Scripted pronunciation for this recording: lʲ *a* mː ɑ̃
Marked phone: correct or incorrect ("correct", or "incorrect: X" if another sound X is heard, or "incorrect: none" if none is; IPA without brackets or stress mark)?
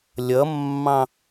incorrect: ʌ